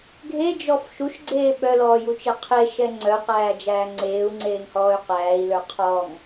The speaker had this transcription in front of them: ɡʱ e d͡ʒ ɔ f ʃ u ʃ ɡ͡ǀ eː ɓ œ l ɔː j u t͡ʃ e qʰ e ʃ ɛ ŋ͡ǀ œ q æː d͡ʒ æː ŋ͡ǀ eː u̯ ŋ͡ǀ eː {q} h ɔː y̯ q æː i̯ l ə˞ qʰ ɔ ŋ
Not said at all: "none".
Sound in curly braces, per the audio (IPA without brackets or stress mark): ŋ